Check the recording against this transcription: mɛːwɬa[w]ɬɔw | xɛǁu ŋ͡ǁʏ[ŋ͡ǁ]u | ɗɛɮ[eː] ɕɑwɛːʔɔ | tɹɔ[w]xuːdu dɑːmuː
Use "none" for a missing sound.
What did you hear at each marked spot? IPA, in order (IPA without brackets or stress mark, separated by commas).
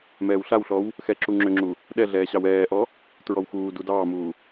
w, ŋ͡ǁ, ɛː, w